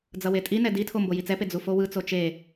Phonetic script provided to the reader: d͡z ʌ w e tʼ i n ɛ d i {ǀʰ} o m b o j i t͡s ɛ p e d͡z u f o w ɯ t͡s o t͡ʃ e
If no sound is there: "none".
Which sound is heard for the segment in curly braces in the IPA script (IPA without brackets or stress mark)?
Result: tʰ